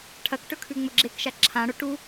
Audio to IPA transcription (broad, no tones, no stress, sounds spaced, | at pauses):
ʈʰ ɐ k ʈ ɵ kʰ ʉ ŋ͡m ɵ ɡ͡ǁ e k ʃ a ǁʰ ã ɽ o ʈ u